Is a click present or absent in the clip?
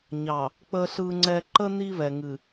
present